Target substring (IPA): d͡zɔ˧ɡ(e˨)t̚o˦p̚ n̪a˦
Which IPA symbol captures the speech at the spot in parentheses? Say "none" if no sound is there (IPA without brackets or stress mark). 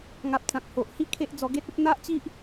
e˦